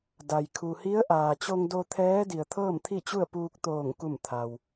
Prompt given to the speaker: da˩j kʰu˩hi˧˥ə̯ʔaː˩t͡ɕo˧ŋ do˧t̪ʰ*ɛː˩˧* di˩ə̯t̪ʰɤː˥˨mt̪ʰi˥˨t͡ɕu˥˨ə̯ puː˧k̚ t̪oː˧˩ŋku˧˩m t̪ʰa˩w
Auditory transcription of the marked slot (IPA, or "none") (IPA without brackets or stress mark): ɛː˧˥